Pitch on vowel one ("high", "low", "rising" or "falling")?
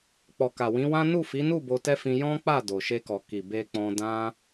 low